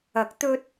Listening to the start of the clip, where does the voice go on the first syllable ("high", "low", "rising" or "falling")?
rising